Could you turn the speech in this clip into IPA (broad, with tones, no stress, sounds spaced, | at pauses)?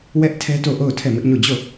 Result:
w ɛ˦ ʔ tʰ ɛ˦ t o˦˨ ʔ o˦˨ ʊ̯ tʰ ɛ˦˨ m ɪ˦ ʔ ɲ o˦˨ d͡ʑ o˦˨